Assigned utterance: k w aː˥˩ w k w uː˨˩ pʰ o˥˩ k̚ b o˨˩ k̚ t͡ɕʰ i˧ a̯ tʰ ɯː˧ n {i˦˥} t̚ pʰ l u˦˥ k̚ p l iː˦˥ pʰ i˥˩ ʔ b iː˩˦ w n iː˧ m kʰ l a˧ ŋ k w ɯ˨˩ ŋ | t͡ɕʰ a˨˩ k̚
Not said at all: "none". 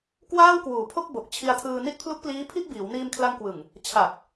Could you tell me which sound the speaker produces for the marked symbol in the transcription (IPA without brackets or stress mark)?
i˦˥